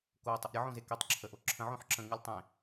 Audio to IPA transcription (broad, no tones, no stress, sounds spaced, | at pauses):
k o tˤ ə ʔ ɾʲ ə ʕ õ z e k e tˤ ǁʰ ə ʔ o ǁʰ ə̃ ʕ õ ħ ǁ ə̃ ŋ ɨ lʲ tˤ ẽ